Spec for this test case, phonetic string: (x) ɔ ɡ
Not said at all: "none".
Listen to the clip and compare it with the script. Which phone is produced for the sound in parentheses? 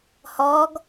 h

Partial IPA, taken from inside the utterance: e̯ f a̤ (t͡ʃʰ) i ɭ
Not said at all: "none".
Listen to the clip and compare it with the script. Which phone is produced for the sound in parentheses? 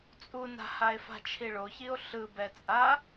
t͡ʃʰ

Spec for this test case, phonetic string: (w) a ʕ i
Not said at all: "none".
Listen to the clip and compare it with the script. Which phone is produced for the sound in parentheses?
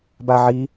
b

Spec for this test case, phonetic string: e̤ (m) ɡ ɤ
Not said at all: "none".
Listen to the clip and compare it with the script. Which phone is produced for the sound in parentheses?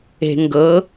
ŋ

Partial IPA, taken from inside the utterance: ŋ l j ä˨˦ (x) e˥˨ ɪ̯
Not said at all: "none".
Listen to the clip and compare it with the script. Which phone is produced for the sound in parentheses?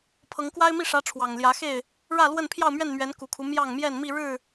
x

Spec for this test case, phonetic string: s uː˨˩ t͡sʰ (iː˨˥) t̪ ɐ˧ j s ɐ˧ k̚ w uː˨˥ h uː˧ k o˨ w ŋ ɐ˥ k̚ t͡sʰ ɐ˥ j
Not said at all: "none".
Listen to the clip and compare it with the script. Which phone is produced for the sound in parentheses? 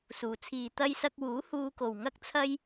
iː˨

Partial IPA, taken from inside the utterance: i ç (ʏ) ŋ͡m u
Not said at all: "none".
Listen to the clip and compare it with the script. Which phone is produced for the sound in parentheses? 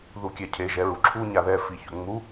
ʏ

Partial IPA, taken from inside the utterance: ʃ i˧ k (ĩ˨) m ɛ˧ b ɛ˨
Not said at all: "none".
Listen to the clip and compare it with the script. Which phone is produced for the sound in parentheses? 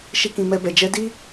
ĩ˨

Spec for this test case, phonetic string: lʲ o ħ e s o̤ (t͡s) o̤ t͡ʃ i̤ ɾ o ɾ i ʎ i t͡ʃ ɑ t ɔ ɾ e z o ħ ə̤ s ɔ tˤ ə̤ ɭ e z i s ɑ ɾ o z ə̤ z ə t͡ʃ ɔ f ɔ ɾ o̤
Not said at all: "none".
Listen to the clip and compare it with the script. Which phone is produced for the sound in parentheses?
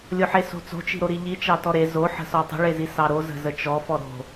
t͡s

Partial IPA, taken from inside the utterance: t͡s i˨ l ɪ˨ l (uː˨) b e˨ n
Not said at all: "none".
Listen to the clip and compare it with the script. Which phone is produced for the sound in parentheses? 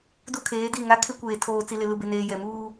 u˨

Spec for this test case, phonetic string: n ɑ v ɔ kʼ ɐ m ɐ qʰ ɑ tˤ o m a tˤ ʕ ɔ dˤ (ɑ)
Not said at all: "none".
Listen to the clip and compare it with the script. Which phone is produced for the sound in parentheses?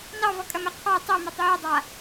a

